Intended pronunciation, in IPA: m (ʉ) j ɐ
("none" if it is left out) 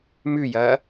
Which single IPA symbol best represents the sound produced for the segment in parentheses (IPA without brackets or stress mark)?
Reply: ʉ